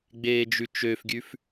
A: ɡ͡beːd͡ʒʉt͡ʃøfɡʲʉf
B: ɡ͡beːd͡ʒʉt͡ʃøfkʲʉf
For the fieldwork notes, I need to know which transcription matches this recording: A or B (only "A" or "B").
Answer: A